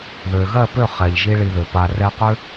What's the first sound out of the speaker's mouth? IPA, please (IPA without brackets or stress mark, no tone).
ð